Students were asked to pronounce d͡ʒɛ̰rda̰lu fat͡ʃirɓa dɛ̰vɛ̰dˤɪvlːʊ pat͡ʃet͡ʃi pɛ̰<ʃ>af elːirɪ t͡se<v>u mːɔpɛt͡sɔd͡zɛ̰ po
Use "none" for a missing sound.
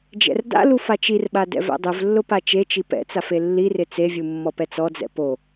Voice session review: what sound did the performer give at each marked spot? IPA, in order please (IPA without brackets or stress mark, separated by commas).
t͡s, vʲ